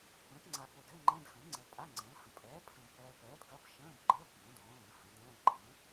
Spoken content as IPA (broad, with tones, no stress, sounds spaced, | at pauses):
p ə̃ː˩˥ t ŋ͡ǀ a˨ p o˨ d ɘ˧˥˧ ŋ͡ǃ ɛ̃˧˥˧ d x ə̃˩˥ l ŋ͡ǀ əː˨ pʼ a˧˥˧ ŋ͡ǀ ə̃ː˩˥ l h ə̃˨ pʼ ɛː˩˥ pʰ ə̃˨ b p ɛː˨ p ɛː˩˥ d ɡ ɐ˧˥˧ b ʃ ə̃ː˧˥˧ b ɡ͡ǃ əː˧˥˧ b ɡ ə̃ː˩˥ d õː˩˥ l ə̃ː˩˥ h ə̃˩˥ d ɛ̃ː˧˥˧ ǃ ə̃ː˩˥